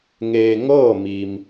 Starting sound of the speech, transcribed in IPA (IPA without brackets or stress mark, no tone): ŋ